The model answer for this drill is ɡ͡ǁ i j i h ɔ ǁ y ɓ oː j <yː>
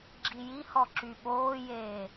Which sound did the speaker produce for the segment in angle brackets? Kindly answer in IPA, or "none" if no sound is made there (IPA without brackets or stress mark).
eː